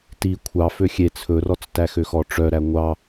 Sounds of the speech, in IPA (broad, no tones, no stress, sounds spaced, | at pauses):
t i kʷʰ ɑ f ø xʲ e t͡sʰ ɵ r ɔ t͡s t æ x ø x ɔ ʈ͡ʂ œ ɾ æ ŋʷ ɑ